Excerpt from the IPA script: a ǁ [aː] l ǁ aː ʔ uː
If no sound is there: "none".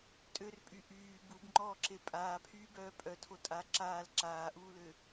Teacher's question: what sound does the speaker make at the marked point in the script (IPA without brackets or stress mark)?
aː